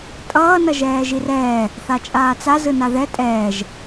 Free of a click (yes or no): yes